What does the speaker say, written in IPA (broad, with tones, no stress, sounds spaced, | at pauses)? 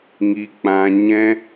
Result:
ŋ i˧ k͡p ã˧ ɲ ɛ̃˦